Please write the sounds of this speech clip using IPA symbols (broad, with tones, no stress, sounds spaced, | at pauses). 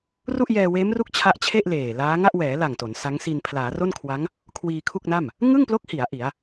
r u˥˩ ʔ j ɛː˧ w eː˦˥ m r u˦˥ k̚ t͡ɕʰ a˦˥ ʔ t͡ɕʰ e˥˩ ʔ l eː˨˩ l aː˦˥ ŋ a˥˩ ʔ w ɛː˩˦ l a˨˩ ŋ t o˩˦ n s a˦˥ ŋ s i˧ n pʰ l aː˩˦ r o˥˩ n kʰ w a˦˥ ŋ | kʰ w iː˧ kʰ u˥˩ k̚ n a˥˩ m | ŋ ɯ˥˩ ŋ p l o˦˥ k̚ h i˩˦ a̯ ʔ i˩˦ a̯